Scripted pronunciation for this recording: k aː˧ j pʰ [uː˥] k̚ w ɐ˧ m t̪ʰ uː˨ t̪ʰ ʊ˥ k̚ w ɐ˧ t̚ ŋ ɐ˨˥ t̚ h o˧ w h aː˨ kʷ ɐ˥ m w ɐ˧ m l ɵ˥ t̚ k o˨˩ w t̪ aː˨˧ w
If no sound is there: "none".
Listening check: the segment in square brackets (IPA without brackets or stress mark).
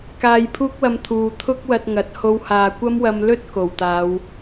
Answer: uː˥